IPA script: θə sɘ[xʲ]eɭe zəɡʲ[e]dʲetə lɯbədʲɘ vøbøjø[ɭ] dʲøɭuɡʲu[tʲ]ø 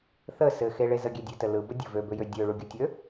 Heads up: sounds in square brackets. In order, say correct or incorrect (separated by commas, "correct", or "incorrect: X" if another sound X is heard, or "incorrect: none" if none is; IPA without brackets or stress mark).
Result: incorrect: x, correct, incorrect: none, correct